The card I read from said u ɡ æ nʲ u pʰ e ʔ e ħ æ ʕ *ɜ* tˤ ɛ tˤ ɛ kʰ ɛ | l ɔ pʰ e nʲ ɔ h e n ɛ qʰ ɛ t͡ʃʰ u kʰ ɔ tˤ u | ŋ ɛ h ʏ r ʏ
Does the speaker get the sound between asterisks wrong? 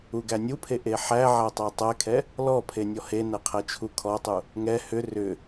yes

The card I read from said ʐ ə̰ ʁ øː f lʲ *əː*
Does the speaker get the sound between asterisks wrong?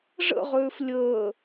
no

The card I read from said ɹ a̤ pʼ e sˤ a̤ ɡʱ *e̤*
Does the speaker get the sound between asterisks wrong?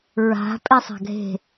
no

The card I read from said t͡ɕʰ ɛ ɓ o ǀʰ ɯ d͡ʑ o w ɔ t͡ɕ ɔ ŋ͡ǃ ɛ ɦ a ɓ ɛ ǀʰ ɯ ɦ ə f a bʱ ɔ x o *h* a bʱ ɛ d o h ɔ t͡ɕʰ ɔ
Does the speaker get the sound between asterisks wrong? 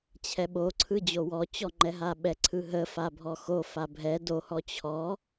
yes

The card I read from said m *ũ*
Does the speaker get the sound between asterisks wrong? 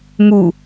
yes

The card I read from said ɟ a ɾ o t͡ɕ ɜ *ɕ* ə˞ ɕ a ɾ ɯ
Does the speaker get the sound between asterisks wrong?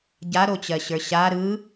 no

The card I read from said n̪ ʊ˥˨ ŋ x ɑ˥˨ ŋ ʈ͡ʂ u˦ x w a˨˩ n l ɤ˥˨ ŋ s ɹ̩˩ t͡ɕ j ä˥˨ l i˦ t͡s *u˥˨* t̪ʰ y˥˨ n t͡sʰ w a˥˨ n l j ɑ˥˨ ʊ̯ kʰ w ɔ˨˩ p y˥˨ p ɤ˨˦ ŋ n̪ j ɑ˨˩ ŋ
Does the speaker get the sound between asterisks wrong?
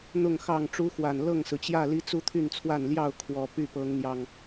yes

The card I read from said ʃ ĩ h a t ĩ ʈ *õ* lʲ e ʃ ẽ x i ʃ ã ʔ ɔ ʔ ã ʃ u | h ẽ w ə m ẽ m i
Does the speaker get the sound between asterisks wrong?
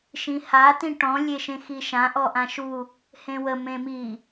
yes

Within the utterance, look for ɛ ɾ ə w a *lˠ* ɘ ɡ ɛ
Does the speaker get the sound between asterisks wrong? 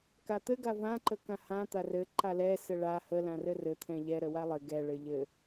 no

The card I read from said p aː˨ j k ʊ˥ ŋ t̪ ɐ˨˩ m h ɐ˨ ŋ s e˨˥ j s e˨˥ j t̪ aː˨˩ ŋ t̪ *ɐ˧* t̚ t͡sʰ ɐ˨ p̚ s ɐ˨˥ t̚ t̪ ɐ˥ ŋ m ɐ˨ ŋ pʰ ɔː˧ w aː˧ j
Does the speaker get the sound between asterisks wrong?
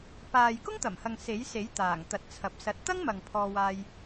yes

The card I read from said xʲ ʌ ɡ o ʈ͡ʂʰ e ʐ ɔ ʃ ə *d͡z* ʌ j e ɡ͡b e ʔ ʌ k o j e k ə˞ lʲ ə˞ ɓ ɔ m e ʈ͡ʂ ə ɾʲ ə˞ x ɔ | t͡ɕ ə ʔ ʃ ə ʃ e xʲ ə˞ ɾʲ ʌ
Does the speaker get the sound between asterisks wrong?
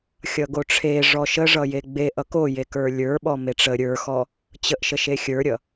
yes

